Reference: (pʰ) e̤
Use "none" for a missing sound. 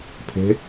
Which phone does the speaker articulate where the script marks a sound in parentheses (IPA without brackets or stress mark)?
pʰ